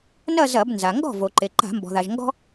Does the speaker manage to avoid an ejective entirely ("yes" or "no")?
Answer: yes